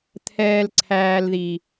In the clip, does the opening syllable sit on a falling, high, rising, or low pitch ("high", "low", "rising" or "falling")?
low